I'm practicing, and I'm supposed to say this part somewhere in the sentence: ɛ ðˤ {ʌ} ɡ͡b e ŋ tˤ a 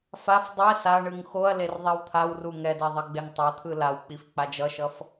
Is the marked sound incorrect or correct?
correct